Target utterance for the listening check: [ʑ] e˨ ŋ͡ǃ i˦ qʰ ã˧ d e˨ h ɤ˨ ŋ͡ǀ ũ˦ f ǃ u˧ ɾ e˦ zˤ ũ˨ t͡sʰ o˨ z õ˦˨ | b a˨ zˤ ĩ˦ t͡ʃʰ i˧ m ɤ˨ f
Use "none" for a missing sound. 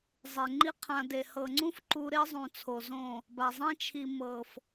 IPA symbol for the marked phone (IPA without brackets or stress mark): zˤ